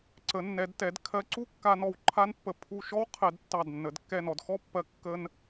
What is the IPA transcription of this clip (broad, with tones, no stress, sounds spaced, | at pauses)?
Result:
ǀ ə˩˧ nː ɛ˩˧ d t ɛ˩˧ d kʰ ɜ˧ ǀ u˥ kː a˧ n ɔ˧˩ w ǃʰ a˥ n pː ə˧˩ pʰ u˧˩ ʃ ɔ˥ w qʰ ɛ˧ d tː ɑ˧˩ d nː ə˩˧ d kː ɛ˧˩ n ɔ˩˧ d x ɔ˥ pː ɜ˧ kː ə˧ n